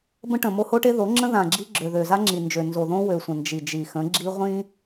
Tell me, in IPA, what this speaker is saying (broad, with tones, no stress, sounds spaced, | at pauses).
b ə̃˦ ʈ ə̃˨ m o˦ h o˦ ʈ e˦ ð o˨˦ ŋ͡ǁ ə̃˦ ð ã˨ ɡ͡ǁ i˦ ɡ͡ǁ ø˨ ð ø˨ z a˦ ŋ͡ǁ i˨ n d͡ʒ ø˨ n z o˨ ð õ˦ w ø˨ sʷ ə̃˨ n d͡ʒ i˨ d͡ʒ i˨ x ə̃˨˦ ɡ͡ǁ i˦ ʁʷ ĩ˦